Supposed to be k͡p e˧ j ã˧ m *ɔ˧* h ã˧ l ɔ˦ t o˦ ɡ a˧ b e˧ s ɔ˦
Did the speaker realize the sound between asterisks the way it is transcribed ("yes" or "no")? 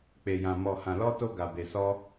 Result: yes